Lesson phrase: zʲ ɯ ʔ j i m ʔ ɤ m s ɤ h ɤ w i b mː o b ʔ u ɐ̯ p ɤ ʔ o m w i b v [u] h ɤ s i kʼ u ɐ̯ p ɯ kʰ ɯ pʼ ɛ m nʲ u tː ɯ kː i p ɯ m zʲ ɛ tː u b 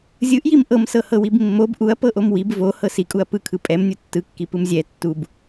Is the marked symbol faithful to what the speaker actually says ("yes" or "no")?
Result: no